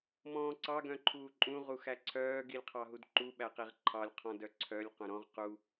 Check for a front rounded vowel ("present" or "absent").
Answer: present